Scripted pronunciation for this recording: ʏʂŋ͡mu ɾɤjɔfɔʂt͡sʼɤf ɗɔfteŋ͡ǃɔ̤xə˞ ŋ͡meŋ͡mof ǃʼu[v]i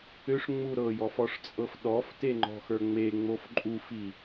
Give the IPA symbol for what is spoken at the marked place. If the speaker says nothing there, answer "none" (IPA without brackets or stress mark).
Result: f